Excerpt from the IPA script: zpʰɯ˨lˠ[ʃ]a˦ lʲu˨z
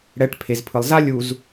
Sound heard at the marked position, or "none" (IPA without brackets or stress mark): z